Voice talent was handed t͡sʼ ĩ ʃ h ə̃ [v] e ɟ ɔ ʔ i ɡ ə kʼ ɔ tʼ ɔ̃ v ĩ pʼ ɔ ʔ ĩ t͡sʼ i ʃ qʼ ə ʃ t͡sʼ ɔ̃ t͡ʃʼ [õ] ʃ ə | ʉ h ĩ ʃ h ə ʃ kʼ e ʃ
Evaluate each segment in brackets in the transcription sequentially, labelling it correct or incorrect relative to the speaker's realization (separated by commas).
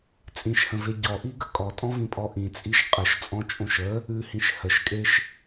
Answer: correct, correct